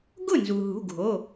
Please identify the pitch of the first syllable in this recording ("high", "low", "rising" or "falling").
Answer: falling